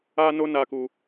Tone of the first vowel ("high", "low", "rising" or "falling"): high